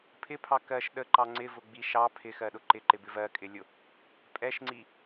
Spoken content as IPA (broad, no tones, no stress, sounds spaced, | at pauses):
pʰ ɪ pʰ ɑ k ɜ ʃ ɗ ə ǃ ɑ ŋ͡ǀ ɪ v ʊ ɡ͡b i ʃ ɑ pʰ ɪ x ɜ ɗ ʊ ǃ ɪ ǃ ɪ b ɪ v ɜ kʼ ɪ lʲ ʊ | pʼ ɛ ʃ ŋ͡ǀ i